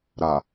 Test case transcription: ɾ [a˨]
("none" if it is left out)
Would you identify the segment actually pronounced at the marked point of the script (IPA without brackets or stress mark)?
a˨